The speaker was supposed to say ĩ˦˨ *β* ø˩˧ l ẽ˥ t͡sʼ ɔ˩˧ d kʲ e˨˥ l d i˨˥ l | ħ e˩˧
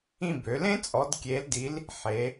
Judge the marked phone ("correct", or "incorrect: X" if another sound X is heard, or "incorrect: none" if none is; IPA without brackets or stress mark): incorrect: b